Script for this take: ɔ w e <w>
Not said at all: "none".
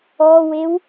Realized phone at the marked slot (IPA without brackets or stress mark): w